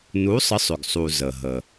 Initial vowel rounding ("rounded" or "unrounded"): rounded